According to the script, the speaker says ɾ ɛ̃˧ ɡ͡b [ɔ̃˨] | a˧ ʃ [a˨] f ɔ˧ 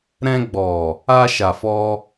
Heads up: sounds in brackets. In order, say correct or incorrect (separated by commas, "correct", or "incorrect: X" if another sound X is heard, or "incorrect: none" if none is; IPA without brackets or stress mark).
incorrect: ɔ˨, correct